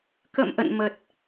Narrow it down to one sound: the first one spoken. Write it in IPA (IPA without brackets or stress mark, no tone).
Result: k